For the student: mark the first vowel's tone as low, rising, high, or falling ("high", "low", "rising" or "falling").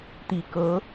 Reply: low